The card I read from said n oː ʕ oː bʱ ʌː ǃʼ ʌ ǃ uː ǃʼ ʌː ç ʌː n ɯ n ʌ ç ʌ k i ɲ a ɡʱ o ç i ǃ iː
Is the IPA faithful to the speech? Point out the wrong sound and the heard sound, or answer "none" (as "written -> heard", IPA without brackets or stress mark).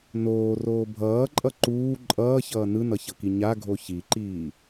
ʕ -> r